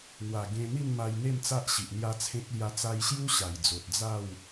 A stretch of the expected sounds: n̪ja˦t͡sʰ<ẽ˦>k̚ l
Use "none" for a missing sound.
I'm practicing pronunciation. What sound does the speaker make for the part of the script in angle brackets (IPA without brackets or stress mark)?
ẽ˦